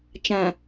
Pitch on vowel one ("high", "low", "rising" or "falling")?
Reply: low